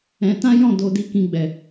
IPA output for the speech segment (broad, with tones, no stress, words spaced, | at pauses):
ɛ̃˧tã˦ jɔ̃˦˨do˧di˧ kĩ˦ɡ͡bɛ˧